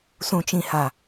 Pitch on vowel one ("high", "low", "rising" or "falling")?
low